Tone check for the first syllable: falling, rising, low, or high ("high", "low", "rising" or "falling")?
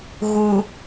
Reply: low